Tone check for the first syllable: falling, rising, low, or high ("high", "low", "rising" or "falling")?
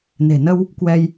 low